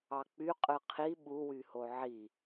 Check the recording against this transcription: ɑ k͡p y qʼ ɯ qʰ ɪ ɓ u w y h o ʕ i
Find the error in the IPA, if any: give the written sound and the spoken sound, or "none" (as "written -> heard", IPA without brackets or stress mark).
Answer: ɪ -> i